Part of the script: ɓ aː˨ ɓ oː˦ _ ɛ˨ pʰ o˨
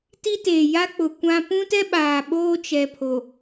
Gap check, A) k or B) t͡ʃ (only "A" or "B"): B